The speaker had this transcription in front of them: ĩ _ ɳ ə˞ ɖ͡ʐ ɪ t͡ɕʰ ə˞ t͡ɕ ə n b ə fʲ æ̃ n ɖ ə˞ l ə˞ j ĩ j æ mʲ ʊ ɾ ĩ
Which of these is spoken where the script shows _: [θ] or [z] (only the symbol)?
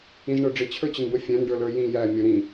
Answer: z